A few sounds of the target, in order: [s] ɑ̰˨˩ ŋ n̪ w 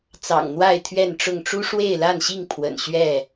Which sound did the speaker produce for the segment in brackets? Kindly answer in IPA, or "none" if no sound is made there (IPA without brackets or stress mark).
t͡s